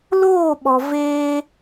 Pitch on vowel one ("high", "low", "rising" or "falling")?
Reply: falling